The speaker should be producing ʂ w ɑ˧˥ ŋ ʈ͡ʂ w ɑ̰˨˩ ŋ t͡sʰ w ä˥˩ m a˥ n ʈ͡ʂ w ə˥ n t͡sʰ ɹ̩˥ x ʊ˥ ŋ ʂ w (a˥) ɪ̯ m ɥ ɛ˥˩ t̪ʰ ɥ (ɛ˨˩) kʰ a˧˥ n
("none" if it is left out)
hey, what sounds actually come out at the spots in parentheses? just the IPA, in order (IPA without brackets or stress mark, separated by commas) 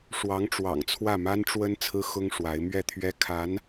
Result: a˧˥, ɛ˥